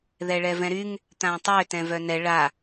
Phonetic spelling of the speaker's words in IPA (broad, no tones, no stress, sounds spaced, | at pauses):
ð ɛ ɭ ɛ v ɛ̃ ɾ y ŋ | t̪ ã tˤ ø t ɛ̃ v œ n ɛ ɭ a